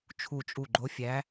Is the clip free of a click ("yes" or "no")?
no